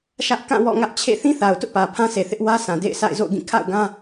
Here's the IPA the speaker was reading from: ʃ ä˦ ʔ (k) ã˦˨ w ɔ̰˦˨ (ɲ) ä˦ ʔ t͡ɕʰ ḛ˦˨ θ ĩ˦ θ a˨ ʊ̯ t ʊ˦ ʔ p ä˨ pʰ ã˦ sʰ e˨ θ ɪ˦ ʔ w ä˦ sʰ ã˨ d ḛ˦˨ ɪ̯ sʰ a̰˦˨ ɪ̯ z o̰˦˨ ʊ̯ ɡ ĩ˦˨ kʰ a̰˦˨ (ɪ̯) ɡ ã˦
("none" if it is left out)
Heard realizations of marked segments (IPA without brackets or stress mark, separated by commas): k, ŋ, ʊ̯